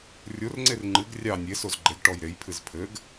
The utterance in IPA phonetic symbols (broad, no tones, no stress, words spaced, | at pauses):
rʲorŋ͡ǀer ŋ͡ǃɨɡ rʲɑ nʲesoz ɡ͡ǃeɡʈɔj ɾejpʰɨz pʰɘɡ